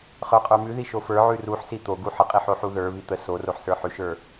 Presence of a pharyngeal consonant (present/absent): present